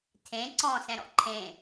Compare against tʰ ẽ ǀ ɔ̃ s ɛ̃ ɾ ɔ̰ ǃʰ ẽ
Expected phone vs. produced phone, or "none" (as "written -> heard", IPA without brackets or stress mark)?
none